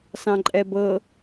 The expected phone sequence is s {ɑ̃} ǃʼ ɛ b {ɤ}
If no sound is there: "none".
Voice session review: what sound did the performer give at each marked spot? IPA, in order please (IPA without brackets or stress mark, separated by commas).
ɑ̃, ɤ